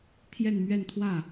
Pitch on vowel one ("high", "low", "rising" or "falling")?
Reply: falling